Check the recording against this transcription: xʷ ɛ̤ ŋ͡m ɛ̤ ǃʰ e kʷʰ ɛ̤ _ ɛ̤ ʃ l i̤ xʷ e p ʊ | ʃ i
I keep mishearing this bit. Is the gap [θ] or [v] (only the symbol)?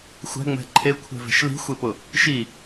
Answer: v